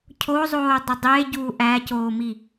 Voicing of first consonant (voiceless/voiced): voiceless